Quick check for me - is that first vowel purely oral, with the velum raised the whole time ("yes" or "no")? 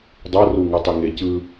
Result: yes